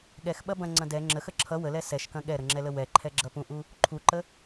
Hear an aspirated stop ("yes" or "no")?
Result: yes